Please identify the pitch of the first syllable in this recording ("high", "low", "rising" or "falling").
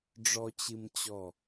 low